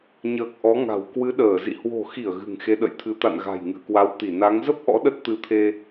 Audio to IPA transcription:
ɲ əː˨˩ k̚ ʔ ɔ˨˦ ŋ a̤˨˩ w k w ɨ˨˦ ɗ əː˧˩ z ḭ˧˨ h w o̤˨˩ x i˧˩ ə̯ ɣ ɨ̤˨˩ ŋ x e˨˦ ɗ ə̰˧˨ j t̪ʰ ɨ˨˦ t̪ a̰˧˨ n ɣ a̤˨˩ j ŋ ɨ̰˧˨ ə̯ k w a˨˦ w t̪ i˧˩ n a˨˦ ŋ z ə˦˥ p̚ ʔ ɔ̰˧˥ ɗ ə˦˥ t̚ t̪ ɨ˧ t̪ʰ e˧

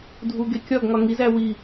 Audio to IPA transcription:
dʱ u ɡ e kʲ ɒ ɡ ŋ ɒ ŋ i z æ w i

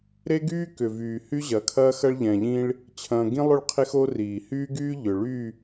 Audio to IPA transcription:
ɾ e˦ ɡ yː˦ k ʏ˨ v yː˨ h y˦ ʑ ɐ˨˦ kʰ ɐː˦ x ɐ˦ ɭ ʎ ɛ̃˨ ʎ ĩ˦ ɭ | t͡ɕʰ ɐ̃ː˦ ɡ ĩ˦ lˠ ʏ˦˨ ɭ qʰ e˦ x o˦ r iː˨ h yː˦ ɡ yː˦ ʎ ʏ˨ ɭ y˦˨

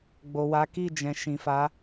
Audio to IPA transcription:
ɡ͡b o˨ w a˨˦ k i˦˨ d͡ʒ ɛ̃˨ ʃ ĩ˨ f a˨˦

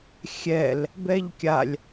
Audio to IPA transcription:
xʲ ɛ l | b ɛ ʎ kʲ a lʲ

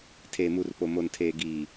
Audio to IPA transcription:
tʰ eː˨ m u˨ r p o˨ m o˨ n tʰ eː˨ ɡ iː˨

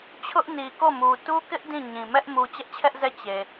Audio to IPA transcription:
t͡ɕʰ ʊ˦ ʔ n i˨ k o˦˨ m u˨ t u˦ k ɪ˦ ʔ d ĩ˦˨ ɲ ĩ˨ m ɛ˦ ʔ m u˨ t͡ɕ ɛ˦ ʔ t͡ɕʰ ɛ˦ ʔ z ɛ˦˨ t͡ɕ e˨

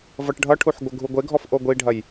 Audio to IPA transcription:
v ʌ ʈ ɖʱ ʌ ʈʰ u ħ ɡʷ ə ɡʱ u ɡʷ e ɡʱ ɔ f ʔ o ɡʷ i ɖʱ ɐ j

